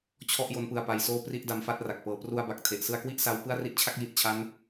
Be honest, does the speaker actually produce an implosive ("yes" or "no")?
no